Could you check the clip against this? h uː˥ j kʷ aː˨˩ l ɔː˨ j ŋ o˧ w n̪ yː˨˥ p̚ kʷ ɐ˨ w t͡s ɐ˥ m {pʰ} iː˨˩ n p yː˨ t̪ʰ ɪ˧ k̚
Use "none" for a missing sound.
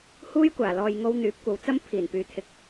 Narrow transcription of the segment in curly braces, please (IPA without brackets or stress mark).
pʰ